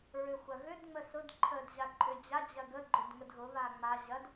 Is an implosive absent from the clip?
yes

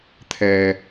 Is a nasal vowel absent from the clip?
yes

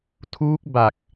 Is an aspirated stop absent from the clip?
no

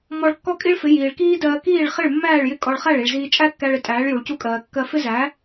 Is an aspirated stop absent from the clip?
yes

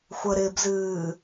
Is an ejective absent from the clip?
yes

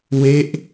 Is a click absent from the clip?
yes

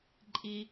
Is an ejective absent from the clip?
no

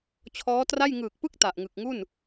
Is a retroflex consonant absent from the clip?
yes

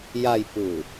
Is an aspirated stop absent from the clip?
yes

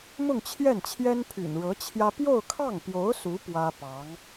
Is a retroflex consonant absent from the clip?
no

